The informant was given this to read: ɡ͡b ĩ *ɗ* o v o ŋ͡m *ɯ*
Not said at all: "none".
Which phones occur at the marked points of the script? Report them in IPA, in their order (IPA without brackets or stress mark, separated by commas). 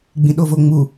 ɗ, u